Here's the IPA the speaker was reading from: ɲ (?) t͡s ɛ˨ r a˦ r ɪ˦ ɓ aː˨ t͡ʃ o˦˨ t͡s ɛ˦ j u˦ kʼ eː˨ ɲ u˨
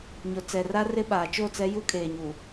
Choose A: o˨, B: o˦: A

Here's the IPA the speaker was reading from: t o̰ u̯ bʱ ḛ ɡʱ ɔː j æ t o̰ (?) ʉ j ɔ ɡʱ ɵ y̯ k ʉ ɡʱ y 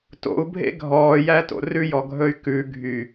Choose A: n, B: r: B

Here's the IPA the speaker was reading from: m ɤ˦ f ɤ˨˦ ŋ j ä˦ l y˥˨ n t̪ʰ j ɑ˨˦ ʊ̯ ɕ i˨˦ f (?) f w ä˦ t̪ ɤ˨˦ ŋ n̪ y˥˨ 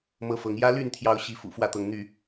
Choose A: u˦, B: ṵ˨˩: B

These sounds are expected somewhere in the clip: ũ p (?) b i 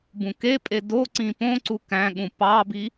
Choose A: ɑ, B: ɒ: A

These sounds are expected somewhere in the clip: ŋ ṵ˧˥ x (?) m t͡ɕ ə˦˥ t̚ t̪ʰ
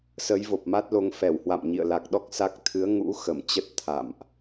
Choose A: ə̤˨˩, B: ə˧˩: B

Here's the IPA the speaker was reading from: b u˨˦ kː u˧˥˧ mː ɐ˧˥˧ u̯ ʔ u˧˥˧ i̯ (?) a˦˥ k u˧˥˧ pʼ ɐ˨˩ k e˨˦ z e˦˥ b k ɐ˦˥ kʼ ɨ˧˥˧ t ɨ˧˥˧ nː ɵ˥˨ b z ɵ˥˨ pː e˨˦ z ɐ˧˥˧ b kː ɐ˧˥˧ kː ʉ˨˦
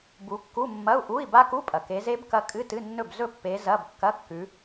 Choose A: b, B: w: A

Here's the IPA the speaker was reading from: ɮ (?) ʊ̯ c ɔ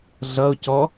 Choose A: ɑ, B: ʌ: B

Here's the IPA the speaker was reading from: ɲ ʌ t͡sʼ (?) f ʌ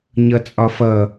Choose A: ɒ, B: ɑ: A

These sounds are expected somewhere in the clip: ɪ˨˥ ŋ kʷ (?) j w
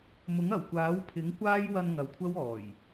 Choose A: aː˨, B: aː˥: B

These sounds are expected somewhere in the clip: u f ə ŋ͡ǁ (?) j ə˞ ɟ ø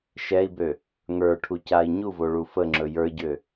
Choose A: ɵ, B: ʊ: A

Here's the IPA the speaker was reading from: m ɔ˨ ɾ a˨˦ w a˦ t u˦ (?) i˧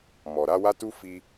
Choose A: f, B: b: A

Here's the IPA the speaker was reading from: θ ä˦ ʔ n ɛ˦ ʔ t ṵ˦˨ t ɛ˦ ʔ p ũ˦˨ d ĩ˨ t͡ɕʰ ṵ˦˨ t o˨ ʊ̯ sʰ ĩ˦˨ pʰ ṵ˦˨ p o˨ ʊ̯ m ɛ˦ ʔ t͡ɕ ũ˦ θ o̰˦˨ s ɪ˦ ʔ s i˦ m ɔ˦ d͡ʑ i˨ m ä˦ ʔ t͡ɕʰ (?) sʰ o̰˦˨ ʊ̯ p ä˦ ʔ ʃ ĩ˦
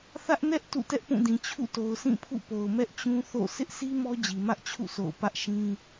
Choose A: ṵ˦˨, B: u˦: A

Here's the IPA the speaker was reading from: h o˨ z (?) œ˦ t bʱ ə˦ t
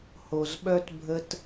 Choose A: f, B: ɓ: B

